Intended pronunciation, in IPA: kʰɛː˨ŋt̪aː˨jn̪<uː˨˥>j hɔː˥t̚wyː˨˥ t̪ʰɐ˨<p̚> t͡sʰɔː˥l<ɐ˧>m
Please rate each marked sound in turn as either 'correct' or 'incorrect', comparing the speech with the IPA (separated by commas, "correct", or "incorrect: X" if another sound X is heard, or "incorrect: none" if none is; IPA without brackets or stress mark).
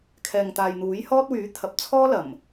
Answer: correct, correct, incorrect: ɐ˨˩